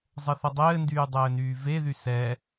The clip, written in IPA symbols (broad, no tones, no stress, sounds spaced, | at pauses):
zˤ ə θ ə dˤ ɘː n d yː dˤ ɘː n yː v e ð y s ɛ